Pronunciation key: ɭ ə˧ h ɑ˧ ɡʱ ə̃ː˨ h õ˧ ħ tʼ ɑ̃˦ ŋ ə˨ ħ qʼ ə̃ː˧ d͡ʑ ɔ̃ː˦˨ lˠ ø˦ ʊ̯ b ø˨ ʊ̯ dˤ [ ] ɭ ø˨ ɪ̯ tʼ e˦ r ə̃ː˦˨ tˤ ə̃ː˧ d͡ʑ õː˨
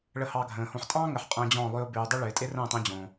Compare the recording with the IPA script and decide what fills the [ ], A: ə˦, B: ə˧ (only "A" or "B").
A